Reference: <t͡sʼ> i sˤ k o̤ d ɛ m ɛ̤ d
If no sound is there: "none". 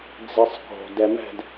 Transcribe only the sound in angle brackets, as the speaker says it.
d͡z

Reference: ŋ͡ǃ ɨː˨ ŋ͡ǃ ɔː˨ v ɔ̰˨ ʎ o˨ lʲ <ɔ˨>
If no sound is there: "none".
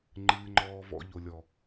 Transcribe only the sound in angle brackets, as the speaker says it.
ɔ˨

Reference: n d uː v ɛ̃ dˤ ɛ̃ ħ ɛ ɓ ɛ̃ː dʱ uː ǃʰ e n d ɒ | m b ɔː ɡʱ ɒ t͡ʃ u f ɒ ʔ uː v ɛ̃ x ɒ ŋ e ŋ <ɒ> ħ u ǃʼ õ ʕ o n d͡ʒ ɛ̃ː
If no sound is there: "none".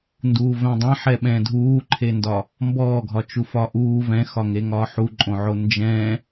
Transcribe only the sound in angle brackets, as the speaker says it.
ɒː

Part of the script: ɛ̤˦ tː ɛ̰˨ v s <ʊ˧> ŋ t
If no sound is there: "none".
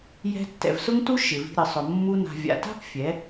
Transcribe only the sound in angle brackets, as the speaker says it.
ʊ˦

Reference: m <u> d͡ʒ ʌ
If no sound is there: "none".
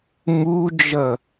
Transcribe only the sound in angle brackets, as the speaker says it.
u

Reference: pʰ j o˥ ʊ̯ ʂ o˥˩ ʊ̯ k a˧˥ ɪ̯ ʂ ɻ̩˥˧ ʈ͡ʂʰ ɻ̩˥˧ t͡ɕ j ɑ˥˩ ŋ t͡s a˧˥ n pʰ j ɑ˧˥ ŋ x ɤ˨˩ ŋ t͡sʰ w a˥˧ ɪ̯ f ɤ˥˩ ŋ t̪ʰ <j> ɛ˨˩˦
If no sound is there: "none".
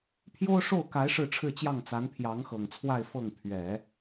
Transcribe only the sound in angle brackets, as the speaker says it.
ɥ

